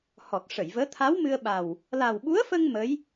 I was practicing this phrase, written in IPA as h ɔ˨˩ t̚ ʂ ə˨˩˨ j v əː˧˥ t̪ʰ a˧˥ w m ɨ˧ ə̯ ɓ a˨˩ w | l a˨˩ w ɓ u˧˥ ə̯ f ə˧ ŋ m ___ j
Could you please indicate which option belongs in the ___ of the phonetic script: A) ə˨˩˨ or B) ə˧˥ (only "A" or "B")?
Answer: B